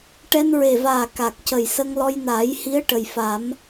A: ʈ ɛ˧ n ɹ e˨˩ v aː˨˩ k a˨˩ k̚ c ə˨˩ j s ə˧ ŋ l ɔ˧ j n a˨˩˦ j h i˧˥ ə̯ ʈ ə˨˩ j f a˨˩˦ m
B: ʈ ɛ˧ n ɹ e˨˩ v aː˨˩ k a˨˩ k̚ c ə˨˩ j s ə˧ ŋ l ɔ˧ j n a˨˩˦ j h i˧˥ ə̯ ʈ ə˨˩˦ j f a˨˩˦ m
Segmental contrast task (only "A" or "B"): A